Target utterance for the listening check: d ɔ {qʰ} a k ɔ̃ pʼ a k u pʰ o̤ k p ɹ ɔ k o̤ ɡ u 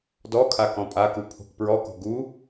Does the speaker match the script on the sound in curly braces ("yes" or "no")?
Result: no